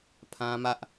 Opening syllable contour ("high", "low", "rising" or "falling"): high